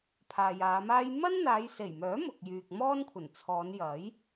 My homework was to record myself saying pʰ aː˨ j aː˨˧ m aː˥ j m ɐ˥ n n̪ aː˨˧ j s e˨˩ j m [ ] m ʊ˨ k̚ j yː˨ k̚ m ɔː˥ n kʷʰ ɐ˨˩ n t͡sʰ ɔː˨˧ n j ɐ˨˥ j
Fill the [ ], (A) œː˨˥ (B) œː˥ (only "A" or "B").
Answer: A